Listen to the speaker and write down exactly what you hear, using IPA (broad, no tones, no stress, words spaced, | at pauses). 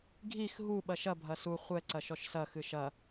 ɡʱix ɦu ɓɐʃɐ bʱɐsu χʷɛ ǀɐʃɔʃsɐ xɨʃɐ